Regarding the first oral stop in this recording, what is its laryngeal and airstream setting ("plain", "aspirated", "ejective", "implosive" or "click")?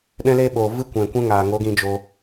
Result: implosive